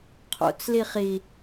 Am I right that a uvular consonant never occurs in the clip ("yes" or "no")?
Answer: no